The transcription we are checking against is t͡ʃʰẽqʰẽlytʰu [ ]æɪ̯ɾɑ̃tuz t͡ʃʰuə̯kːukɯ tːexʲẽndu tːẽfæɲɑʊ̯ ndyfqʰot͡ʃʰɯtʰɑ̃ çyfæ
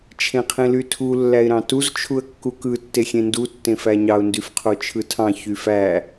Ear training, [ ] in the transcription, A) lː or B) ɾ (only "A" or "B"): A